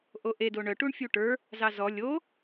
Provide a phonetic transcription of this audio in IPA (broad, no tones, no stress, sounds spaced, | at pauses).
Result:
ʔ o ʔ e d o ɳ œ ʈ u ɳ fʲ u ʈ ə˞ | z ɑ z ɔ lʲ o